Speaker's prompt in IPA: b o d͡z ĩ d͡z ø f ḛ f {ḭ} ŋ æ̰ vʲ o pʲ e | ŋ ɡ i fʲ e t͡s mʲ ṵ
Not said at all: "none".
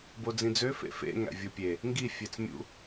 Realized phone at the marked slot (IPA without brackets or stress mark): ḛ